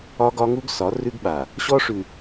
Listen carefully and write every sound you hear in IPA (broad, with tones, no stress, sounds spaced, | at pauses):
ɒ˦ ɡ ɒ˦ ŋ u˦ ɡ s ɒ˨˦ r ʉ˦ ɡ ɓ a˨ | ɕ ɔ˦ ʂ ʉ˨